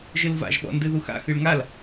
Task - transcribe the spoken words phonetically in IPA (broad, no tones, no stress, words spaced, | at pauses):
ʒɨlva̰ʒ ɓɔ̰ndɨðuxa̰ xɨɭŋal